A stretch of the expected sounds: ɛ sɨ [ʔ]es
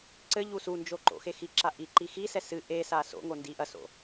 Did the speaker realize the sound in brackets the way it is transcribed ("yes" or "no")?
yes